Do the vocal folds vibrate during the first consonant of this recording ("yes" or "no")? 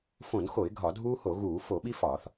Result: no